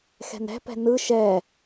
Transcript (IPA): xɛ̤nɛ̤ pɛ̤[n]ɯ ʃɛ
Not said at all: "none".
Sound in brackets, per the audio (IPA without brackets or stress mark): n